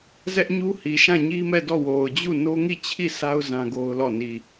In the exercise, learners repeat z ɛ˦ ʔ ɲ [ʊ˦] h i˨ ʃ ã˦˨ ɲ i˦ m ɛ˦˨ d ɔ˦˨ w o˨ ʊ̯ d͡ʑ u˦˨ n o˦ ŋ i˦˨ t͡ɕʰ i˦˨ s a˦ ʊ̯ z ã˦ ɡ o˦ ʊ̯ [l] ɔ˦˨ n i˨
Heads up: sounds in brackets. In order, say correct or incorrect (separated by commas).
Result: incorrect, correct